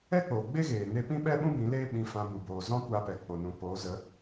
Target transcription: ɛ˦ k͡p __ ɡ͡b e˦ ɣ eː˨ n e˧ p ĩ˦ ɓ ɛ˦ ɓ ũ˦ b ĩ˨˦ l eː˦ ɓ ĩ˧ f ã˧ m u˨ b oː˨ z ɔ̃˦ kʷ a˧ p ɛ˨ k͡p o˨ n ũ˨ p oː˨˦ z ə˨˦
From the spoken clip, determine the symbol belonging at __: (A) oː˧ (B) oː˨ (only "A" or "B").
B